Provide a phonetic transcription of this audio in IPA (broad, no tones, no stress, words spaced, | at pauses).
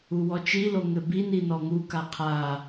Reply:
uwɔt͡ʃilo ŋɘbini nɔŋuka qʰa